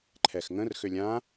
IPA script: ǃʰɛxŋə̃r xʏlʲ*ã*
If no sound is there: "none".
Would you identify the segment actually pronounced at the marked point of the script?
ã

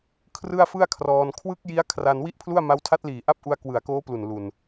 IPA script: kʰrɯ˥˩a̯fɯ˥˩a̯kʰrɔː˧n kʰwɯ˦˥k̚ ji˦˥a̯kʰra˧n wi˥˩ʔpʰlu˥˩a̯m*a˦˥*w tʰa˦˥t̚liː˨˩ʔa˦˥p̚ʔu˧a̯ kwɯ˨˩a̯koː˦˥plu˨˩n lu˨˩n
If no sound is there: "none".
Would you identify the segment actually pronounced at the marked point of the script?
a˦˥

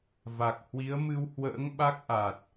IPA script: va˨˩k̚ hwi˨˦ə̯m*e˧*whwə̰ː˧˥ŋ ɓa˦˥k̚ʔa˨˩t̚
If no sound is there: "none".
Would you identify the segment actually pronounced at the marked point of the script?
ɨ˧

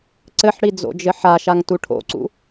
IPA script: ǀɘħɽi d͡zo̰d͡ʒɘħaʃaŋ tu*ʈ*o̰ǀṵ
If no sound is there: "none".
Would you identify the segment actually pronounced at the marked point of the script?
ʈʰ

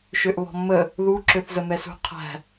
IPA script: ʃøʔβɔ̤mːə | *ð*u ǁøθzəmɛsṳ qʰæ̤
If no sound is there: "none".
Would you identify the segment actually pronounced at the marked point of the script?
ð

